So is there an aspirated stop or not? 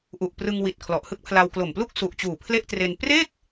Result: yes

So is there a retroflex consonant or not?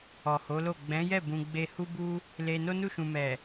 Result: no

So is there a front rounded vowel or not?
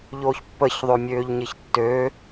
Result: yes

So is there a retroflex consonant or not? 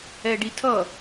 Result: yes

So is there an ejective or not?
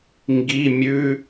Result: no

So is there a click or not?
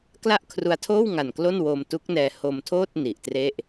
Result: no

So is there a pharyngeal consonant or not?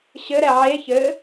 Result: yes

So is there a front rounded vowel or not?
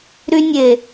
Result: yes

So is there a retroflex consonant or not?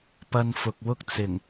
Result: no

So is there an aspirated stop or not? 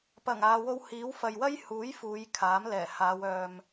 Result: yes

